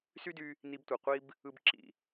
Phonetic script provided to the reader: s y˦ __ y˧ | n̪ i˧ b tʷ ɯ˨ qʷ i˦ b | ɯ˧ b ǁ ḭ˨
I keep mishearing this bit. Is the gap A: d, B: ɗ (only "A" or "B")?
A